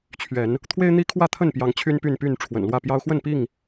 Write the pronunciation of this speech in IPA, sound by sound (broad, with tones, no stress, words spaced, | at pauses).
t͡ɕʰɥɛ˨˦n | t̪ʰwe˦ɪ̯n̪i˦kʰwä˥˨ t̪ʰə˥˨npjɑ˨˦ŋ t͡ɕʰy˦npy˥˨n py˥˨n ʈ͡ʂʰwə̰˨˩nlwä˥˨pjɑ˦ʊ̯ xwə˥˨npi˥˨ŋ